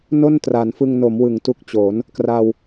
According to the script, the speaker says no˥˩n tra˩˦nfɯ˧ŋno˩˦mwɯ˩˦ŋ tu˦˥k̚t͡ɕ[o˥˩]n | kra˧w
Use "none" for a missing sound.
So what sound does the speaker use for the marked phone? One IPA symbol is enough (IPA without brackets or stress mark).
o˩˦